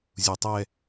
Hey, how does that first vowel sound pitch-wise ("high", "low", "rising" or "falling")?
low